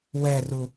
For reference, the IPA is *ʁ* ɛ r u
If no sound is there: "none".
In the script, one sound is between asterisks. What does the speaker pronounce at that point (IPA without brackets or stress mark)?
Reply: w